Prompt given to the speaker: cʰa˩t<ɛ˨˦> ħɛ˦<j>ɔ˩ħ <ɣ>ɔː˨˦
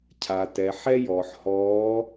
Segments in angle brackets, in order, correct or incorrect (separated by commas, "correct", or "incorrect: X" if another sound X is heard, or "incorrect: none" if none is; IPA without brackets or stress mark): incorrect: ɛ˩, correct, incorrect: h